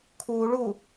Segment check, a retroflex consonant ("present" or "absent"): present